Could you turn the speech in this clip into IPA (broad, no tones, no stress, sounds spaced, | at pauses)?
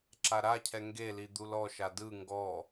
ǁ a ɾ a cʰ ɛ ŋ ɡ e l i d̪ u l ɔ ʃ a d ɯ ŋ ɡ ɔ